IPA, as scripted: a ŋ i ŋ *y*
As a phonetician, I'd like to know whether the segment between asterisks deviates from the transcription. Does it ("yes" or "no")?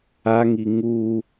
yes